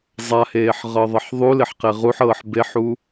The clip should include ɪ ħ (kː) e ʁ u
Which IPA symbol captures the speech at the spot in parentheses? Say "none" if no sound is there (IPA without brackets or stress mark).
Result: q